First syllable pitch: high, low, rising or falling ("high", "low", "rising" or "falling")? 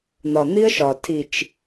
low